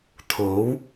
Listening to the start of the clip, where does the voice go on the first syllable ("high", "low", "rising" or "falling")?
rising